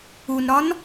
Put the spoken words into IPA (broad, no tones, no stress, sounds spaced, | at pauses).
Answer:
u n ɾ ɒ n